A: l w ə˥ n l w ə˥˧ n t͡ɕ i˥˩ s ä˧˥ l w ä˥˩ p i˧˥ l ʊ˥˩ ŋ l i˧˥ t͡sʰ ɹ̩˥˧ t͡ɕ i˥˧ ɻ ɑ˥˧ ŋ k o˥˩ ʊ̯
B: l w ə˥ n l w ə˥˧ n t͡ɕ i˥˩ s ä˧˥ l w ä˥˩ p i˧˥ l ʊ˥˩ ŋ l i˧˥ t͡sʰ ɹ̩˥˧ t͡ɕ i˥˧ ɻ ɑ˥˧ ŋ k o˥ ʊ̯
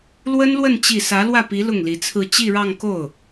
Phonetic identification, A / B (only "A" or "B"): A